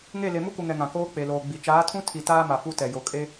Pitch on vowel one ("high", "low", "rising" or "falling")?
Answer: falling